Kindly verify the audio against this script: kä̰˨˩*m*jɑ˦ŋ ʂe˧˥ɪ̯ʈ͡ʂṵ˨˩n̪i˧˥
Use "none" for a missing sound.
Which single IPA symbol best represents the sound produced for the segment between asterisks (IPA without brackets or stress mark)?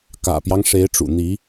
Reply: p